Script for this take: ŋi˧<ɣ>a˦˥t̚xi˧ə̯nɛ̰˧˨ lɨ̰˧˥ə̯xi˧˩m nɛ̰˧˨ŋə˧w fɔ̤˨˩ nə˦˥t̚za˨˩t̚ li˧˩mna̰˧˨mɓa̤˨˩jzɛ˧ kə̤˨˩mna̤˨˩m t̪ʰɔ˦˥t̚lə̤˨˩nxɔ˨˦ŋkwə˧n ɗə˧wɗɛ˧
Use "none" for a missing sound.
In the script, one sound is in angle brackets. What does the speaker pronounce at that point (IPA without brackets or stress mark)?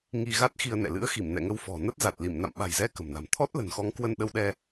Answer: ɣ